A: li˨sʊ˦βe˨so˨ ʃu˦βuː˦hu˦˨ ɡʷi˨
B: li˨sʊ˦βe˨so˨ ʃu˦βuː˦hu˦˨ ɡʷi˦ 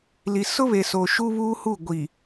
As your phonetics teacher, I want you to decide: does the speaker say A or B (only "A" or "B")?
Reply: A